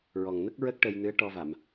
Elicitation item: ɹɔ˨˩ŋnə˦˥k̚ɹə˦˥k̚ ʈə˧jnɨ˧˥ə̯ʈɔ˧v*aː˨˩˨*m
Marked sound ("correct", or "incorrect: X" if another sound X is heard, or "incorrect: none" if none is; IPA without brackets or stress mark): incorrect: a˨˩˨